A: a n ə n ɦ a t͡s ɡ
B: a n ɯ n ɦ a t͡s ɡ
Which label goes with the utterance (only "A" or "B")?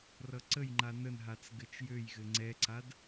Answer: A